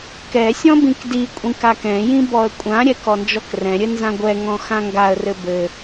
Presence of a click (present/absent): absent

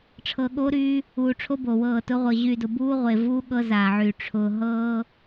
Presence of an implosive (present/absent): present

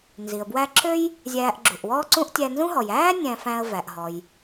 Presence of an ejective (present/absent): absent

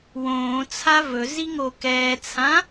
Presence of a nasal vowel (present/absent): present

